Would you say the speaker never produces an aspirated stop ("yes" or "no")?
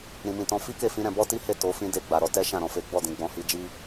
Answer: yes